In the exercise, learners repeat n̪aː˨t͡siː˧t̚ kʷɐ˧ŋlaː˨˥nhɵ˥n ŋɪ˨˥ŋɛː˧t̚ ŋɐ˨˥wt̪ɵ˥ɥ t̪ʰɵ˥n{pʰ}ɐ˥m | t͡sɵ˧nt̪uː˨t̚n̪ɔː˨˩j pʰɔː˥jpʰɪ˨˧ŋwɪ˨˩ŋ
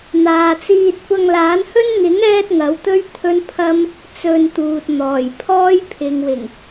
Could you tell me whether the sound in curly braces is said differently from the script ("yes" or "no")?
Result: no